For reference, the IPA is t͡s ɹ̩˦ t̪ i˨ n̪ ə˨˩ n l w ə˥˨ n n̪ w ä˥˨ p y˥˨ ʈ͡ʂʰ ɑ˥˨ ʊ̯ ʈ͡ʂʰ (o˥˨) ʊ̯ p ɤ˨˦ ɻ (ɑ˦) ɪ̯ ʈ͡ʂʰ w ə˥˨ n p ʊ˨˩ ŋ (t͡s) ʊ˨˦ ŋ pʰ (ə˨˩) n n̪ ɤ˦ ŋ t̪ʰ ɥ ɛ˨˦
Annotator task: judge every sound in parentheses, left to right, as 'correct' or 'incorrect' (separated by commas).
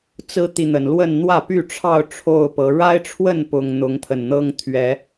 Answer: correct, incorrect, incorrect, correct